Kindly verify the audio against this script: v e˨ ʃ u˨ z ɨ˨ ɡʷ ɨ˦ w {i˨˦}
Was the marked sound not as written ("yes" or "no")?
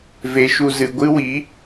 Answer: no